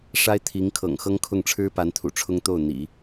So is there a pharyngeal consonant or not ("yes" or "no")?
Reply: no